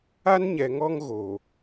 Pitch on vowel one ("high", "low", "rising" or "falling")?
high